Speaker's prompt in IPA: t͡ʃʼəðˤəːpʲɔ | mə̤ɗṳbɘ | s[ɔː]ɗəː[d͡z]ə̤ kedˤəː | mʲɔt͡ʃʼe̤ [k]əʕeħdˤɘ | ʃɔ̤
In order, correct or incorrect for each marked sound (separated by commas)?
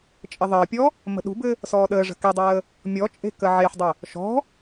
correct, incorrect, correct